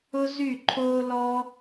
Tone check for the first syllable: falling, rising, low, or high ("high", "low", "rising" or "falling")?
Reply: high